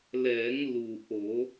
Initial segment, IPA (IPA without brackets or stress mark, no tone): l